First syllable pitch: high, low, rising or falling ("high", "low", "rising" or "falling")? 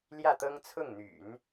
falling